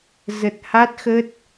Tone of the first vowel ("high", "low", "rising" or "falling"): low